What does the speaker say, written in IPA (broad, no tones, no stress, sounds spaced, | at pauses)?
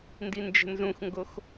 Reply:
n d i n d͡ʒ ə̤ n z ũ x ŋ ɡ o x